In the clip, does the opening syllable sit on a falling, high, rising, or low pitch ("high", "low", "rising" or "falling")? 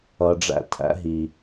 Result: low